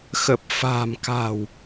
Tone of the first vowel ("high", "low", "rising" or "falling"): low